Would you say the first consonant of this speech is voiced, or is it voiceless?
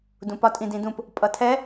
voiced